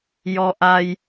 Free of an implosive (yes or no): yes